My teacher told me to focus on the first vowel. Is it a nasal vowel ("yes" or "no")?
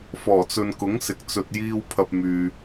no